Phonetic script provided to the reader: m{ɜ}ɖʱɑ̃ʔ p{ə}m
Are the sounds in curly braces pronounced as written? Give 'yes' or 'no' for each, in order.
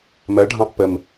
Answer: yes, yes

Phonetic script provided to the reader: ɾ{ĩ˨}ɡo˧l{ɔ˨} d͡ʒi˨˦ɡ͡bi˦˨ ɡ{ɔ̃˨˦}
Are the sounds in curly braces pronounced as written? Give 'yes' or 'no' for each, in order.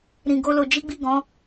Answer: yes, no, yes

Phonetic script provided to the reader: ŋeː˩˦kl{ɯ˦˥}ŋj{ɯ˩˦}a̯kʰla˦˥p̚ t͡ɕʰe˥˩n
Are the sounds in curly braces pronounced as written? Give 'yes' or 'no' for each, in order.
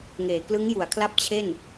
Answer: yes, no

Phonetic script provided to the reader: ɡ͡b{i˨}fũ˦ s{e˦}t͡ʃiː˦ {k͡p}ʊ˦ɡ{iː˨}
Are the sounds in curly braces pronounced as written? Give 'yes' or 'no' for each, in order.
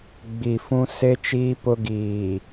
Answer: yes, yes, no, yes

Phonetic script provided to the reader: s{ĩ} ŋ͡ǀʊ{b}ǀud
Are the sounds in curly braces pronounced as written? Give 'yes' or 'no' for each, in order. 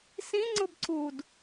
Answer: yes, yes

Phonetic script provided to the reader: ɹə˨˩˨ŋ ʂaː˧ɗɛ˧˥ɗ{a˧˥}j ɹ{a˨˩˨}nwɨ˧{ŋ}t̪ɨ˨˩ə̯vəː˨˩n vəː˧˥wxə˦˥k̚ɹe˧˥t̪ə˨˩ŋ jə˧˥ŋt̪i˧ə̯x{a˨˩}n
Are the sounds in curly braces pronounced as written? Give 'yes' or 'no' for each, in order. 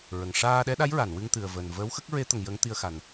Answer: yes, yes, yes, yes

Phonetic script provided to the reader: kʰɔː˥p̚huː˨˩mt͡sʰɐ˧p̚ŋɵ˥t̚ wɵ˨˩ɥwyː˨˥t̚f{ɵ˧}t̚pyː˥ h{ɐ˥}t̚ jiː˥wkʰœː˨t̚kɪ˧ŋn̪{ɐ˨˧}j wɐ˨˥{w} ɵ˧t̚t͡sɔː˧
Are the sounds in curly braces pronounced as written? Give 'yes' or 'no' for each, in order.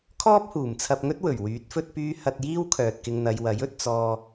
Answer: no, no, yes, no

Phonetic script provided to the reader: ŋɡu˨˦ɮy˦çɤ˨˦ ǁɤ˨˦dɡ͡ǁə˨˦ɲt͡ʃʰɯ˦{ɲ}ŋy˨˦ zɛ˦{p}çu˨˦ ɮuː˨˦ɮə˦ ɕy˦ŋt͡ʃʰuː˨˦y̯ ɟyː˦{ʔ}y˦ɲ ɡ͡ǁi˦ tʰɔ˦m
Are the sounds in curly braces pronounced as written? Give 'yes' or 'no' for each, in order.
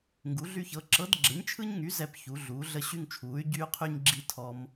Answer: yes, yes, no

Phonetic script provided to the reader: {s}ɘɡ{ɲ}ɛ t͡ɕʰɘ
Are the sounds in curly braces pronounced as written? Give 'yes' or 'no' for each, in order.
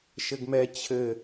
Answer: no, no

